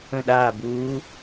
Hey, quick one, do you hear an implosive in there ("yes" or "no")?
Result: yes